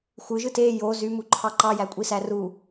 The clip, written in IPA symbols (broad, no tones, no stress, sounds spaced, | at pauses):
xʷ ɯ ʒ ɯ t e j o z y m u ǃʰ ɑ ǃ ɑ j æ kʷʼ i s æ r u